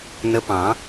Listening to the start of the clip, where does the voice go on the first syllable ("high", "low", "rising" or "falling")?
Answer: rising